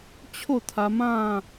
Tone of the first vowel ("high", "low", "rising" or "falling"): falling